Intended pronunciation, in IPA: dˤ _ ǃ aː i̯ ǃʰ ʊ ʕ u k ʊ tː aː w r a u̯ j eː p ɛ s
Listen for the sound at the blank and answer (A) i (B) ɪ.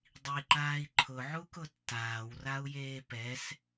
A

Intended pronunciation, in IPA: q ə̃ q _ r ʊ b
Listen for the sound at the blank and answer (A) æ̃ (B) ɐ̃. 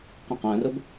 A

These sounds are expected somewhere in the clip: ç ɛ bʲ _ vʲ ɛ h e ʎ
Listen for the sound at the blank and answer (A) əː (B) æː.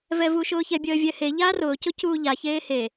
A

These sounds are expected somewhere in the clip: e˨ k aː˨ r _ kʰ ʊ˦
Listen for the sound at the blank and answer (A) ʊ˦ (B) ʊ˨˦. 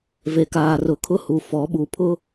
B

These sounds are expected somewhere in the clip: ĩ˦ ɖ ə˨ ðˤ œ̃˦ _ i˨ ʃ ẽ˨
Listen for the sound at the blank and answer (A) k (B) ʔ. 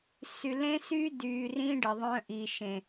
B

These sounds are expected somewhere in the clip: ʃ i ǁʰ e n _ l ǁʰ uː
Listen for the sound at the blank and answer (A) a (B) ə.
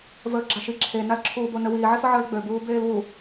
A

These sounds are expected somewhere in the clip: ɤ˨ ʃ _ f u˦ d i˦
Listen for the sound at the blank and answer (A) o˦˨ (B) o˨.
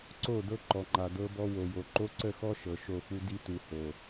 A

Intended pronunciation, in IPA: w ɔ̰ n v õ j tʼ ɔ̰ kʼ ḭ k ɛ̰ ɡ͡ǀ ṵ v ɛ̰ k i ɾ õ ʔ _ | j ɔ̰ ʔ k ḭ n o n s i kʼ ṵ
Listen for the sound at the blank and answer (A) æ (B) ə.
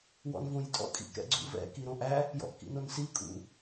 A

